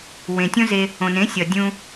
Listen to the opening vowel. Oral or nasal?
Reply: nasal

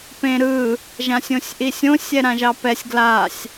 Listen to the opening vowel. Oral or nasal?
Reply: nasal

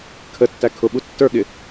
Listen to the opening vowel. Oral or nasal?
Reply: oral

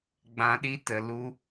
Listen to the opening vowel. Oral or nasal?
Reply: nasal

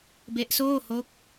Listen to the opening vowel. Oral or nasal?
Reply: oral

